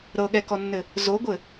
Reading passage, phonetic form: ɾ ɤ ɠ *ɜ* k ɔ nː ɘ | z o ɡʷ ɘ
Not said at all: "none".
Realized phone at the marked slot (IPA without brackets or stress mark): ɛ